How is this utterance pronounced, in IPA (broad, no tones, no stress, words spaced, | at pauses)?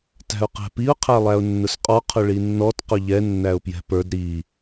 tæ̤ʊ̯qæ̤piʊ̯ qʰælˠæʊ̯nːʊsqʼɔ qʰʊɭinːɔt qʊʎɛ nːæʊ̯pjɛ̤pə˞d ɾi